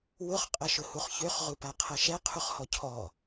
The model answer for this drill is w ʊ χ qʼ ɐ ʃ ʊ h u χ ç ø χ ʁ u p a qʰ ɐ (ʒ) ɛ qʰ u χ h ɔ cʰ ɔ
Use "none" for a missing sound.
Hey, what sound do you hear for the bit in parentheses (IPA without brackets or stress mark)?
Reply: ʃ